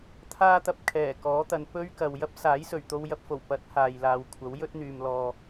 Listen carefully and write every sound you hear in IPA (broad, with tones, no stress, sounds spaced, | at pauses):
t̪ʰ aː˥ t̪ ɐ˧ p̚ kʰ ɛː˨˩ k ɔː˨˥ t̪ ɐ˨ n p ɵ˥ ɥ k ɐ˨ w j ɐ˥ p̚ s aː˨˥ j s ɵ˨˩ ɥ t̪ o˧ w j ɐ˧ p̚ f o˨˩ w p ɐ˨˥ t̚ h aː˨ j l aː˨ w kʷʰ ɐ˨˥ w j ɵ˥ t̚ n̪ yː˨ m l ɔː˨